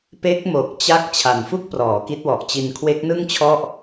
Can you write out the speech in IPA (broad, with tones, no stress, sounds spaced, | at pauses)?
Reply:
p e˦˥ k̚ m o˨˩ k̚ t͡ɕ a˦˥ k̚ t͡ɕʰ a˨˩ n f u˥˩ k̚ p r ɔː˩˦ k i˦˥ t̚ w ɔ˨˩ ʔ t͡ɕ i˧ n kʰ w e˦˥ k̚ n ɯ˥˩ ŋ t͡ɕʰ ɔ˥˩ ʔ